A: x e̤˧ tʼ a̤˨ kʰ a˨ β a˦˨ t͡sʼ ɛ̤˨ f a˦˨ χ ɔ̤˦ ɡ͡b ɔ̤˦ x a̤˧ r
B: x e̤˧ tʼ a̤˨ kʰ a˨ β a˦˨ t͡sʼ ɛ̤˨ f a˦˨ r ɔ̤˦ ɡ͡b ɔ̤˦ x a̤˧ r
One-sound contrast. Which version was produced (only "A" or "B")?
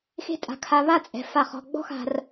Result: A